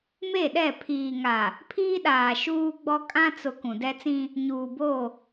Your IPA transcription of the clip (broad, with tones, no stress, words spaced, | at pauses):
me˦˨ɗɛ˦˨ pʰiː˨ŋa˨ | pʰiː˦ɗaː˨ ʃuː˦ɡ͡bɔ˦ kʼã˦t͡sʊ˨ kũ˨dɛ˦t͡sĩ˦ | ɲuː˨bo˦˨